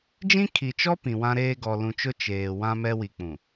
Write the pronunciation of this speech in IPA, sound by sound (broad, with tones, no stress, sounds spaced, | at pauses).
d͡ʒ ĩ˦ kʰ i˨ t͡ʃ ɔ˦ p ĩ˨ w ã˦ ɾ eː˦ ɡ ɔ˨ l ũ˨ t͡ʃ ʊ˦ t͡ʃ eː˨ w ã˦ m ɛ˦ w i˨ k͡p ũ˨